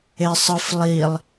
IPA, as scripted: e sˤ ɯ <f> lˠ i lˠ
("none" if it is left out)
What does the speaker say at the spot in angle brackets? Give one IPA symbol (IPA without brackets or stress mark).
f